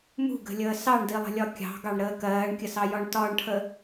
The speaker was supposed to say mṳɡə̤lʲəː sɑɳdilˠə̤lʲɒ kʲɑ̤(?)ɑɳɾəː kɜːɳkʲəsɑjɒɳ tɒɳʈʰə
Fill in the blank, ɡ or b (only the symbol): ɡ